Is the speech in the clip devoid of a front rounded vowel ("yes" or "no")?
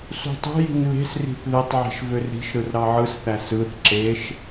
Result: no